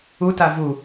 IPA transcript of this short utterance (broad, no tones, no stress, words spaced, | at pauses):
uta vu